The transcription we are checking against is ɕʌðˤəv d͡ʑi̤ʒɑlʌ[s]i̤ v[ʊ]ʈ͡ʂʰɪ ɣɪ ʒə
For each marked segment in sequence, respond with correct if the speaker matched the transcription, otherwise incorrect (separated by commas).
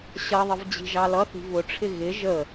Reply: incorrect, correct